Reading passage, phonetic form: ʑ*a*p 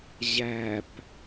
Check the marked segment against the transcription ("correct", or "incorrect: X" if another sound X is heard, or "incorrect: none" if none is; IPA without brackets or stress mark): incorrect: æ